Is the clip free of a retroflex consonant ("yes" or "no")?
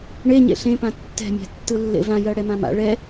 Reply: no